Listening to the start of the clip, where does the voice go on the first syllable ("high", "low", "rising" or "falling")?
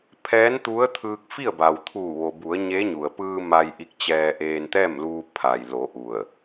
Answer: rising